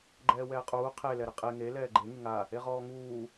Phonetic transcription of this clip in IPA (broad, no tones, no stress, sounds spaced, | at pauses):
ɡ͡ǃ ɛː w ɛː qʼ uː qʰ e l ɛ ɾ ɪ qʼ e ŋ e l ɛː ɡ͡ǃ e ŋ ɪ ŋ a | e ʁ ɔː ŋ uː